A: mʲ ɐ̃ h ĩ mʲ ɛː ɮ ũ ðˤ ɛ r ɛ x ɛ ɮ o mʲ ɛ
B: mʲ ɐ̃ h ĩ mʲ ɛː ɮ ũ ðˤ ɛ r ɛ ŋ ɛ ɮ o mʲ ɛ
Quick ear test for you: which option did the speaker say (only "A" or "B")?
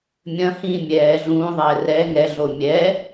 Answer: B